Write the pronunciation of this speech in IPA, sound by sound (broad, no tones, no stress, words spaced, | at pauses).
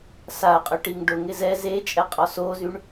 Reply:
saɐ̯qʼʏʈiŋ ɖʊ ŋɪzɛ zet͡ʃʼɛ qʼɔsozyɳ